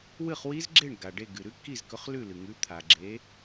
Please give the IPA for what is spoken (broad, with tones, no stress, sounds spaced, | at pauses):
w ɨ˥˨ χ w i˦˥ z ɡ͡ǁ e˥˨ ɳ ɡ a˩ ɖ e˥˨ ɡ ɨ˩ ɾ ʉ˦˥ kː i˥˨ z k ɵ˨˥ χ l ʉ˥˨ l ɨ˩ ŋ ʉ˨˥ t̪ʰ a˩ ɡ͡ǁ e˨˥